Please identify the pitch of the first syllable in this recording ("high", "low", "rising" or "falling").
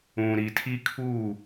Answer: low